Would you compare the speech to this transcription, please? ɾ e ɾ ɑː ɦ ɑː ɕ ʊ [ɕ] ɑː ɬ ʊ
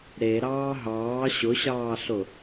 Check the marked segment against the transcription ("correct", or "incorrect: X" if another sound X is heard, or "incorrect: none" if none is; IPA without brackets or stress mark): correct